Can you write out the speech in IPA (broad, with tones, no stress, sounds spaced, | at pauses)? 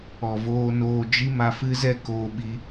ɔ˨ v oː˧ n oː˧ d͡ʒ i˦ m a˧ f ɨ˦ z ɛ˦ k oː˧ ɓ i˧